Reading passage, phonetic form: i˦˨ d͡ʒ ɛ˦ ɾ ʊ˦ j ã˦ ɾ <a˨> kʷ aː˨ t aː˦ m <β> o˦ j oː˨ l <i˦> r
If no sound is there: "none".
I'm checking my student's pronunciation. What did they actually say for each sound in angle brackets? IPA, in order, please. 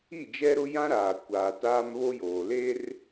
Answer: aː˨, β, e˦

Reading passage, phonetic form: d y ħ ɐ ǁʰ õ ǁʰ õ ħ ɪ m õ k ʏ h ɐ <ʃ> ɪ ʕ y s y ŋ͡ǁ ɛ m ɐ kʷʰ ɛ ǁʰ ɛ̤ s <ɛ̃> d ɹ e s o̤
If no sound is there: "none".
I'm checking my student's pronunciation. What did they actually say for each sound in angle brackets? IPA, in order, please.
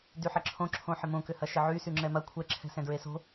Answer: ʃ, ɛ̃

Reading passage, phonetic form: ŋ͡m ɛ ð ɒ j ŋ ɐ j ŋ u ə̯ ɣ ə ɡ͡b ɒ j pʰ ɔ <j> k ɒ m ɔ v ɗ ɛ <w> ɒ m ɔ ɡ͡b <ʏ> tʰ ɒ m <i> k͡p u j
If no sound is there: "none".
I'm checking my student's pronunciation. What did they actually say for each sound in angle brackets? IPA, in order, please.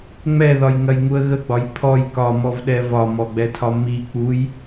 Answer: j, v, ɛ, i

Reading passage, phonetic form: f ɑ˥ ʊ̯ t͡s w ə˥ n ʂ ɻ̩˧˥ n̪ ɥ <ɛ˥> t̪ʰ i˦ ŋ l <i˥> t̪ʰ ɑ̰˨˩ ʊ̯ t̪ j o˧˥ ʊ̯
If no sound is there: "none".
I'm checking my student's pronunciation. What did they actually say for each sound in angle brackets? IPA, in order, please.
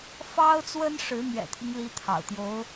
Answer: ɛ̰˨˩, i˥

